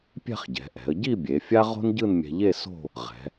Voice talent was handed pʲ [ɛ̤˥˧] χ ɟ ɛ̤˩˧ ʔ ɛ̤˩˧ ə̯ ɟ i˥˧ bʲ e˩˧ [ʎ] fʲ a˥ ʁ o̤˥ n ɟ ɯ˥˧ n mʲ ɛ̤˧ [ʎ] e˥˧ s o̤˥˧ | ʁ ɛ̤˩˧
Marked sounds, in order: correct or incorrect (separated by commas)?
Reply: correct, incorrect, correct